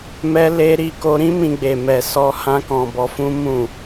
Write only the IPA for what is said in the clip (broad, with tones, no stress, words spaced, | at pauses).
mɛ˦le˦ ɾi˧ko˧ɾĩ˦ mĩ˧ɡ͡be˨ mɛ˨sɔ˧ hã˦kɔ̃˧bɔ˧ fũ˦mũ˦˨